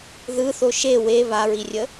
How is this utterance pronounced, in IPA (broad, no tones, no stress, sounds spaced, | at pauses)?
ð ɯ θ o ʃ e w e β a ɹ i rʲ ə